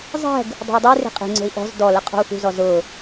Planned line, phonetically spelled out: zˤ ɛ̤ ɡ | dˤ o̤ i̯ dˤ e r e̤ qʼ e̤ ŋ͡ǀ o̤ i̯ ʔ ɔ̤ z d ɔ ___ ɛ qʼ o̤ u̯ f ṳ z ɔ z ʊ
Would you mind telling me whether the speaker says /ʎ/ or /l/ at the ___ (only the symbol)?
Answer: l